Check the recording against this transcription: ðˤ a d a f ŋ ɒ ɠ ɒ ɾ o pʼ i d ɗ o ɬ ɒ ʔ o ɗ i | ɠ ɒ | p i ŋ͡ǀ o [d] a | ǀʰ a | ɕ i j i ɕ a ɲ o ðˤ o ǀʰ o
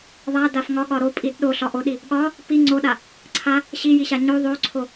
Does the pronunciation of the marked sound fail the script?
yes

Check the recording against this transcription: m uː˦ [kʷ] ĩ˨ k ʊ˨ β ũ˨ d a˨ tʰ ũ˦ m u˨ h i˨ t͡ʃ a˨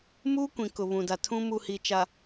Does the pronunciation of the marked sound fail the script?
no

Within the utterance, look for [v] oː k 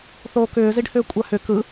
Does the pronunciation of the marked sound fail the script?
yes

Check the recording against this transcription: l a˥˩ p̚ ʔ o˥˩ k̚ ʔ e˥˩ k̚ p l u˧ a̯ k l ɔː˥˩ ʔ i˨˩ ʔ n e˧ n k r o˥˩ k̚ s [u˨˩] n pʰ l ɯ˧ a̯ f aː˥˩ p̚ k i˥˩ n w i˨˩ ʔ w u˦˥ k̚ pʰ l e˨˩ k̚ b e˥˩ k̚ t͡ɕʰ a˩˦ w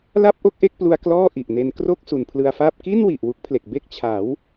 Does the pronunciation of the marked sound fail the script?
no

